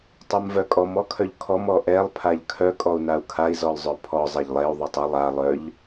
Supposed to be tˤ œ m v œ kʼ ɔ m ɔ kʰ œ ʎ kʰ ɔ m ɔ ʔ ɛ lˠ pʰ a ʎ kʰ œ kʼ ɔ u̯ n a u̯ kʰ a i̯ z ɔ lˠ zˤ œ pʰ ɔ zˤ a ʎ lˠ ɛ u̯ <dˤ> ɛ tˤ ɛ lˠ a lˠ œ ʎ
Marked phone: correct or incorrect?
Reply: incorrect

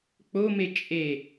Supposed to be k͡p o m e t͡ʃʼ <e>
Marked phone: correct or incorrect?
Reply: correct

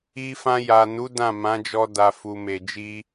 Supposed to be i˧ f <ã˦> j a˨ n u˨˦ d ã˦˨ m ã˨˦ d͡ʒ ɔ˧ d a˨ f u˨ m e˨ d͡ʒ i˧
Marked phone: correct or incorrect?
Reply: incorrect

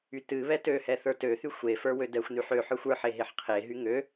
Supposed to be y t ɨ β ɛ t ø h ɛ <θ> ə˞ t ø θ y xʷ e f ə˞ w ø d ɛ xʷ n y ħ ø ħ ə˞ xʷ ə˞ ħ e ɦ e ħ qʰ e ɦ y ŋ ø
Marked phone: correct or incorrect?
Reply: correct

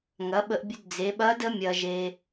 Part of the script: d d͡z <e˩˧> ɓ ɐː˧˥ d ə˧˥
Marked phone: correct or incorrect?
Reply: correct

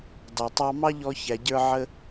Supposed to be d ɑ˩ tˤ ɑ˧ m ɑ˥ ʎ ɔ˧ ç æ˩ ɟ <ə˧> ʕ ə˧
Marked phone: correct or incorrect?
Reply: incorrect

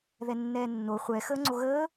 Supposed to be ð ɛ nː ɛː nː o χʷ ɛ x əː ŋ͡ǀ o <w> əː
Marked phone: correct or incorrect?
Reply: incorrect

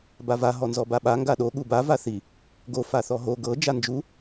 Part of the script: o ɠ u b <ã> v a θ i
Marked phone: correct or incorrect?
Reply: incorrect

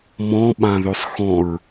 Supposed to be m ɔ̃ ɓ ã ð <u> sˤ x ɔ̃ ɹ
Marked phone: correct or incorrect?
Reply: incorrect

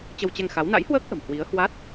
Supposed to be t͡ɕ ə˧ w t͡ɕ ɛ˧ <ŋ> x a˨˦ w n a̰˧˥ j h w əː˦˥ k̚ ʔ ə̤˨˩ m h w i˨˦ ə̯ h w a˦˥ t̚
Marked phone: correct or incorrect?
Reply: correct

